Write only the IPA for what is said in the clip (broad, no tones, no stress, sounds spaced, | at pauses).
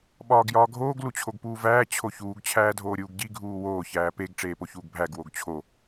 ɓ ɒː ɡ j ɒː ɡʱ oː ɡ l u t͡ɕʰ o ɡ p uː v æː t͡ɕʰ o ç uː ɡ t͡ɕʰ æː dʱ oː ɾʲ uː ɡ ɟ i ɡʱ uː w oː ç æː p e ɡ ʈ͡ʂ eː p o ç uː ɡ bʱ æ ɡ w o ɡ t͡ɕʰ o